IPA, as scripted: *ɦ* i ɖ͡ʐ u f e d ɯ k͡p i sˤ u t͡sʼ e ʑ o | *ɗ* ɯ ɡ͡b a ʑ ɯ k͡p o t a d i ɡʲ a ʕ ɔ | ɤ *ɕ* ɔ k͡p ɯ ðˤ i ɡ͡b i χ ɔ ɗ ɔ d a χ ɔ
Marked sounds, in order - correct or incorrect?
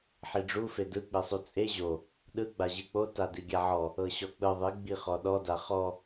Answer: incorrect: ħ, correct, correct

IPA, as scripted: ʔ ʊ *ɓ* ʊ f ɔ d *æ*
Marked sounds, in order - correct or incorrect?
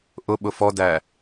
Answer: correct, correct

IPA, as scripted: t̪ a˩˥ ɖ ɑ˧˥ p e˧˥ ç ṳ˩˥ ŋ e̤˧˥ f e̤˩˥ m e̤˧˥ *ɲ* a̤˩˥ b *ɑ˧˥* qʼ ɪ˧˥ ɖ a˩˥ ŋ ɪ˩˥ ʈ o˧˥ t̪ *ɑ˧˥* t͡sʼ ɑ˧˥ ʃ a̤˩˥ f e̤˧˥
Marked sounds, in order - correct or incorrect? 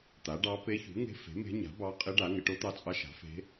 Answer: correct, correct, correct

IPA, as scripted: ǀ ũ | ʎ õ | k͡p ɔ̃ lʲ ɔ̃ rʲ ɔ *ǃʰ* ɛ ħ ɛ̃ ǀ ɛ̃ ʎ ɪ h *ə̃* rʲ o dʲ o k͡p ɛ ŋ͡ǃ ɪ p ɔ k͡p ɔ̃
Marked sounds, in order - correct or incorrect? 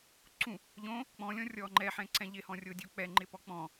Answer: incorrect: ŋ͡ǃ, incorrect: ɔ̃

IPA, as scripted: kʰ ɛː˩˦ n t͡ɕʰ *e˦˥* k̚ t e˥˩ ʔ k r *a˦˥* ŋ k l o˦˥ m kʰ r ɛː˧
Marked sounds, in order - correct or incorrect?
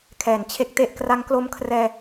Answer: correct, correct

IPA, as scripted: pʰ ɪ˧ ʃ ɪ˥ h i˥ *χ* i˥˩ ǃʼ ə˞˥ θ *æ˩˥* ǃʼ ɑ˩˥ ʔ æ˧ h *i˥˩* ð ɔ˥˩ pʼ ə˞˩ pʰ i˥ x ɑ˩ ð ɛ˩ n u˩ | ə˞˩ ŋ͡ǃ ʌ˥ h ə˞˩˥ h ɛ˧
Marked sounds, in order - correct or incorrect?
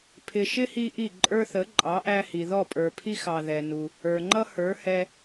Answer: incorrect: ʔ, incorrect: ə˩˥, incorrect: i˩

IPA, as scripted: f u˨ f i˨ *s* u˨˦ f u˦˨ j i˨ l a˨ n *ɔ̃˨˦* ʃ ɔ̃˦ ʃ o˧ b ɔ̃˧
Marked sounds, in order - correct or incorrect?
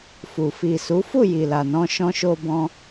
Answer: correct, incorrect: ɔ̃˧

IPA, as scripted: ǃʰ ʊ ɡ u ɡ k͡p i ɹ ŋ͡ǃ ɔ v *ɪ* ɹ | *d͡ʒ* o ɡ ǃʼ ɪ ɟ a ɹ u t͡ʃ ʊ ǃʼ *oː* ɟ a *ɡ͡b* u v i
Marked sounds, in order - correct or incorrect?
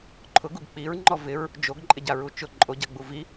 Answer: correct, correct, incorrect: o, correct

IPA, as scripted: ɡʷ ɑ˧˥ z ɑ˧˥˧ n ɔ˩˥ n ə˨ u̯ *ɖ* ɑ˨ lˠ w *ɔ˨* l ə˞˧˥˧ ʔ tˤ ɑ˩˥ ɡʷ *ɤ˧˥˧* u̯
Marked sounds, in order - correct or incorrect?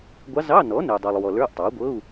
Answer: incorrect: dˤ, correct, correct

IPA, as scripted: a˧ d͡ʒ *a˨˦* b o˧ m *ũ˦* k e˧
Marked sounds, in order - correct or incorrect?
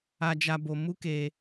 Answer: incorrect: a˧, incorrect: u˦

